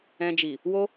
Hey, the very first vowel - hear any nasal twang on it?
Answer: yes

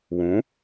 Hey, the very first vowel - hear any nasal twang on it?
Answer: yes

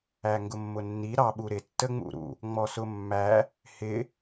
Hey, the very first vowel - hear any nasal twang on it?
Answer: no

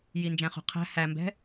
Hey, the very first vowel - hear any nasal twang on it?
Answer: no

